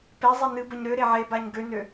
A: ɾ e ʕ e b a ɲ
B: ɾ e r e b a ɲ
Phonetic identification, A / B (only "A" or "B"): A